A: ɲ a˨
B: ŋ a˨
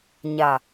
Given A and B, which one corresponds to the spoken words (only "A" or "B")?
A